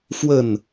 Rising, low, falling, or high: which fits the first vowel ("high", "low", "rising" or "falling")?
falling